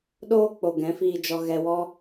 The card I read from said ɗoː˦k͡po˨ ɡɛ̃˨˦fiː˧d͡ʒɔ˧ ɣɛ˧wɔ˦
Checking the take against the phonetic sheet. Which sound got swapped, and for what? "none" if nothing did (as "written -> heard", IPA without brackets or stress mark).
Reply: none